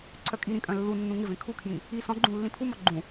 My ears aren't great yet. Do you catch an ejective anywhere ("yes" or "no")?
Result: yes